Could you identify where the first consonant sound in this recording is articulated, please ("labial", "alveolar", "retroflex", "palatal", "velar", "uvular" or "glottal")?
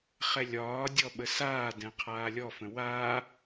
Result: uvular